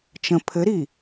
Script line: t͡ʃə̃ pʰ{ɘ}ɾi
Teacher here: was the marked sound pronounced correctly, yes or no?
yes